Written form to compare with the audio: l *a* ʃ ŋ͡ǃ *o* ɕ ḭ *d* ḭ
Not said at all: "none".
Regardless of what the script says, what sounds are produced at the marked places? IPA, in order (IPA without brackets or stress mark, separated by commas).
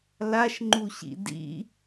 a, u, d